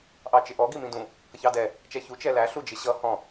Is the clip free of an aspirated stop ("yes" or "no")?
yes